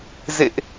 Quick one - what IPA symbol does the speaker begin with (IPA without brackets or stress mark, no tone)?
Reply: z